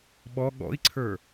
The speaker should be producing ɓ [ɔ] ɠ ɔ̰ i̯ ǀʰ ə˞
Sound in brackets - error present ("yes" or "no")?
no